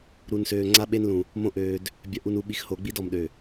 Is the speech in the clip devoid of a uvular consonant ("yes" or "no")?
yes